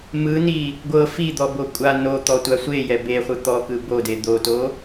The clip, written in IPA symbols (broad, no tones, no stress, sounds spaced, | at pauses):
m ɯ n i | ɡʷ ɤ f i d̪ ɔ b o kʷʼ a n o t̪ ɔ tʷ a sʷ e j ɛ b e χʷ ɯ t̪ ɔ k ɯ b o d e d̪ o t o